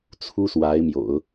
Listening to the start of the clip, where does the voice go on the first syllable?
high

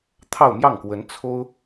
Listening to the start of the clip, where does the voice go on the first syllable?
falling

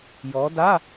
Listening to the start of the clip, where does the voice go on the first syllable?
rising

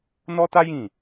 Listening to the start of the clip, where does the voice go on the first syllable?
high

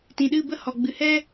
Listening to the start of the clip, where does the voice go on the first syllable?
low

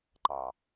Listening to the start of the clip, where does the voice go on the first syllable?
low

